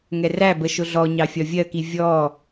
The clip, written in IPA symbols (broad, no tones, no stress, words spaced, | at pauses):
ŋɛræbə ʃʊɮɔɲɑ fʲɒvʲɜki vʲɔ